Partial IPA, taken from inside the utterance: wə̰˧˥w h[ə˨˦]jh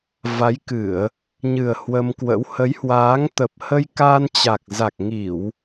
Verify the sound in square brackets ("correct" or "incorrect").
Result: correct